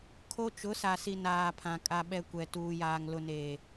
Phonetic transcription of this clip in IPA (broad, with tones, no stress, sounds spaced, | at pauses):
kʰ o˦ t͡ʃ ʊ˨˦ s a˨ s i˨ n aː˨ pʰ ã˨ kʼ a˨ ɓ ɛ˨ kʷ ɛ˨ t uː˨ j aː˨ ŋ l ʊ˨ n eː˨